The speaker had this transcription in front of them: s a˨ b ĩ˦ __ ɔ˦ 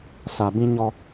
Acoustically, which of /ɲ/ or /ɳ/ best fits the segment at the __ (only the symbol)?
ɲ